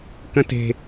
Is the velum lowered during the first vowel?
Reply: yes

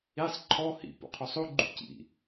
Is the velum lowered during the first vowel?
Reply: no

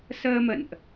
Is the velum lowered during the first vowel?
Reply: no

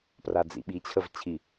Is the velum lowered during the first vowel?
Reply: no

